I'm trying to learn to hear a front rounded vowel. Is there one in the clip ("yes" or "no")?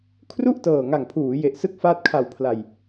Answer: no